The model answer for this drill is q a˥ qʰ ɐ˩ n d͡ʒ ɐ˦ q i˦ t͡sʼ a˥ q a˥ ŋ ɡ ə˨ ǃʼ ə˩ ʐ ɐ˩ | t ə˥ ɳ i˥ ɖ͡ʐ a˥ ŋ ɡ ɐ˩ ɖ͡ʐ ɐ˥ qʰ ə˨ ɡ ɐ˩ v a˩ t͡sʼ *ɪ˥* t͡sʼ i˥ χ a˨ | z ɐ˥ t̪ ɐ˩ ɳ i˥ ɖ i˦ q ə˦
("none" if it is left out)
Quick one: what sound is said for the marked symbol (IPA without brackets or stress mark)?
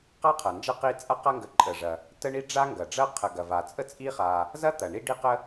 ə˥